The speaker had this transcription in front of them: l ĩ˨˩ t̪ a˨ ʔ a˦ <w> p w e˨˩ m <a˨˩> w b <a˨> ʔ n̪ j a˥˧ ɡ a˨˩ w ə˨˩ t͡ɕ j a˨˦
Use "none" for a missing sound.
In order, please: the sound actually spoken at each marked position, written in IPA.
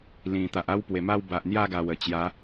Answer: w, a˥˧, a˨

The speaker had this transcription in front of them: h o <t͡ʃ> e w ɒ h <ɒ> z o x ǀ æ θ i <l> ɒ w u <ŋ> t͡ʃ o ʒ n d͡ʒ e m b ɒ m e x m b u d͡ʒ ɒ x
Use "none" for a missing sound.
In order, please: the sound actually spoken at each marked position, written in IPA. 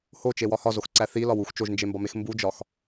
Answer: t͡ʃ, ɒ, l, x

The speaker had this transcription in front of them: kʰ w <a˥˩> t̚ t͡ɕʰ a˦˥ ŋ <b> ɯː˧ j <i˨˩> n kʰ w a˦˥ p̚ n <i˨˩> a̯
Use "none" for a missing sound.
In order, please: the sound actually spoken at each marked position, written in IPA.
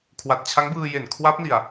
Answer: a˨˩, b, e˨˩, i˨˩

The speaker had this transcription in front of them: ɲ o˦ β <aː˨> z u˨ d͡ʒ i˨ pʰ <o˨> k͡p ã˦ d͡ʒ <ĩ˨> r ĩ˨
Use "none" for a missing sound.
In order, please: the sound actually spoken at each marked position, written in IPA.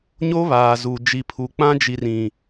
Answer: aː˨, u˨, i˨

